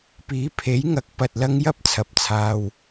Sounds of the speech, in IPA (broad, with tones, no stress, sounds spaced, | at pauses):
p iː˨˥ pʰ e˨˥ j ŋ ɐ˨˥ k̚ p ɐ˧ t̚ l ɐ˥ ŋ j ɐ˥ p̚ t͡sʰ ɐ˨˥ p̚ t͡sʰ aː˧ w